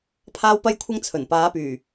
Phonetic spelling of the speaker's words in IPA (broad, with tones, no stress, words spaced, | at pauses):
pʰaː˥wpɐ˥jkʷʰɐ˥ŋt͡sʰɵ˨˩n paː˨˧pyː˨˩